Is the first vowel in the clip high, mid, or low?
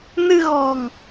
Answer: high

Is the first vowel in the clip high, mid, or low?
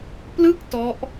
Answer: high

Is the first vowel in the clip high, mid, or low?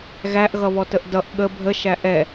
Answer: low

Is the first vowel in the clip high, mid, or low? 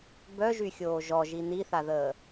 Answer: mid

